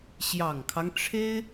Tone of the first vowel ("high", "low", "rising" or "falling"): low